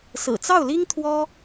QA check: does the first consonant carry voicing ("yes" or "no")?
no